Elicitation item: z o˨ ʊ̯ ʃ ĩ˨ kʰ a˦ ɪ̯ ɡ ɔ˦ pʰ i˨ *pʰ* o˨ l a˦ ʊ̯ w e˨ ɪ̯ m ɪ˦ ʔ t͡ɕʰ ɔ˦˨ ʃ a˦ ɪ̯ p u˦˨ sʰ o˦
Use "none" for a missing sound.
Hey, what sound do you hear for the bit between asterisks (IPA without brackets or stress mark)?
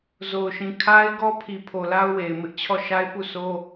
pʰ